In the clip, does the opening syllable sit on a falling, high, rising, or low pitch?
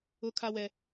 high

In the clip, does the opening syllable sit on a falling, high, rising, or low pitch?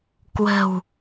low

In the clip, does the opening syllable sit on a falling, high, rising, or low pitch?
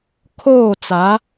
falling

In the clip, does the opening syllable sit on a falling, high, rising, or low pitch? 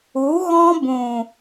rising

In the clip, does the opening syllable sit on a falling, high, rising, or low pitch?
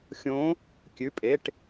rising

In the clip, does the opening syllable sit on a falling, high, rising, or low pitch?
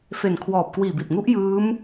low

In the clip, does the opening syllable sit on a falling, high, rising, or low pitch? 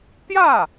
falling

